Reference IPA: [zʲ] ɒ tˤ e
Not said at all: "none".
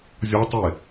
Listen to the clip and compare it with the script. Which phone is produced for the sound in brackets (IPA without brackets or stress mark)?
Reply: zʲ